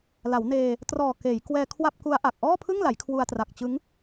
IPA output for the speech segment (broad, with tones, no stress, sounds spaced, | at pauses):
l a˩˦ w n eː˧ | t r ɔː˨˩ k eː˩˦ j k w ɛː˧ kʰ w a˥˩ p̚ k u˦˥ a̯ ʔ a˨˩ k̚ ʔ ɔː˥˩ pʰ ɯ˥˩ ŋ l a˩˦ j kʰ w u˧ a̯ t r a˨˩ k̚ t͡ɕ ɯ˦˥ ŋ